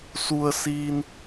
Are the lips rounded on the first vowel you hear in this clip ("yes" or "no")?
yes